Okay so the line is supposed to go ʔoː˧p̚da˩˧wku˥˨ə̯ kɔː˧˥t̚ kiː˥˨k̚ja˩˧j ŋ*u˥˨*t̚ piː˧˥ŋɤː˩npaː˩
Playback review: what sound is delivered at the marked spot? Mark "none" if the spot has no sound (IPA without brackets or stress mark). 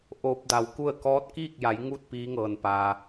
u˥˨